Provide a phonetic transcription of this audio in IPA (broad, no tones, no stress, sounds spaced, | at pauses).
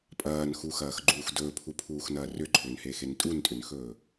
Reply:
pʼ ɐː n x u x ɐː x ɡ͡ǃ uː x d ɵː pʰ u pʰ uː x n ɐː r ʏ ǃʰ ʏː n h eː x e n tʼ u n tʼ ʏ n x ɵː